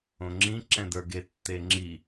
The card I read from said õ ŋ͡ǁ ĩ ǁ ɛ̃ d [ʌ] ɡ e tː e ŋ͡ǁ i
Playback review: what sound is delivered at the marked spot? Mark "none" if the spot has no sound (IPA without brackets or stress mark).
ə˞